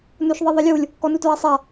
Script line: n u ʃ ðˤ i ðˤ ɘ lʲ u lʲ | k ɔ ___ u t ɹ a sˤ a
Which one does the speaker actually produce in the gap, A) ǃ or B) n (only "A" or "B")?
B